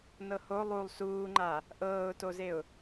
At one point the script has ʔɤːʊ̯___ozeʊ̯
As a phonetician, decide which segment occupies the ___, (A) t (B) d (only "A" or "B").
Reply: A